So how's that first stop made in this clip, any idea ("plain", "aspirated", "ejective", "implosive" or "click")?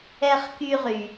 plain